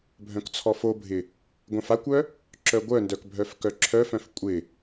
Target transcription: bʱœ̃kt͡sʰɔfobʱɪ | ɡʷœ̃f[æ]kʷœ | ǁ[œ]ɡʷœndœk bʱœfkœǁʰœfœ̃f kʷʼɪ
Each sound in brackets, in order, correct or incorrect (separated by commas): incorrect, correct